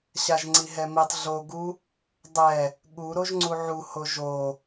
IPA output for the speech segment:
ɕ a ʒ ŋ͡ǀ i ɦ ɛ m i tˤ ɮ o ɡ u | dˤ ɛ | ɠ u ɾ o ʒ ŋ͡ǀ u ʕ u h o ʒ o

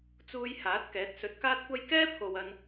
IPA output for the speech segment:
t͡s uː˧ j h aː˨˥ t̚ k ɛː˨˥ t̚ s ɵ˨˥ t̚ k aː˥ t̚ kʷ ɐ˥ j k ɛː˥ pʰ o˨ w ɐ˧ n

